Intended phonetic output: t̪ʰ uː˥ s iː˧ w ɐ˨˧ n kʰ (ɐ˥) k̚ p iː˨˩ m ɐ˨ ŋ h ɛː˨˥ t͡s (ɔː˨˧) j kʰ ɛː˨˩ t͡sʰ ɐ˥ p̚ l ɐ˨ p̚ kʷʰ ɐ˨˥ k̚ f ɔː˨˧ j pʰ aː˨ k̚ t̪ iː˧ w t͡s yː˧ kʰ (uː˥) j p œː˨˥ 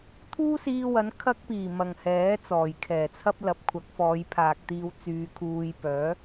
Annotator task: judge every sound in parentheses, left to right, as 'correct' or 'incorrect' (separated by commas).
correct, incorrect, incorrect